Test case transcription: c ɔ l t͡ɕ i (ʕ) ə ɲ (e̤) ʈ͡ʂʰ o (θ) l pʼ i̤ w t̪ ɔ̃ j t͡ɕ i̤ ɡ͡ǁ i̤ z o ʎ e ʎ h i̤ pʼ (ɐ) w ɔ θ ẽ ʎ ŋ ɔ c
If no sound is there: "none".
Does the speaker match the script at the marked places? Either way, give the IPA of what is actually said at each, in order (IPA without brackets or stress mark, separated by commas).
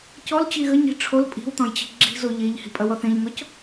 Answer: ɣ, i̤, none, ɐ